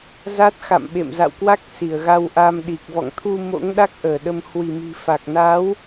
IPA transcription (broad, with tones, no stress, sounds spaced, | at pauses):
z a˦˥ t̚ x a̰˧˨ m ɓ ḛ˧˨ m z a̰˧˨ w k w a˦˥ k̚ s i˧˩ ə̯ ɣ a˧ w ʔ a˧ m ɗ i˨˩ k̚ v ɔ̰˧˨ ŋ t̪ʰ u˧ m o̰˧˥ ŋ ɗ a˦˥ k̚ ʔ əː˧˩ ɗ ə˧ m h w i˧˩ m i̤˨˩ f a˨˩ k̚ n a˨˦ w